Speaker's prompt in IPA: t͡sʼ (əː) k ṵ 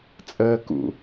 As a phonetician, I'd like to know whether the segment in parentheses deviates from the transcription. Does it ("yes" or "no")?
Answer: no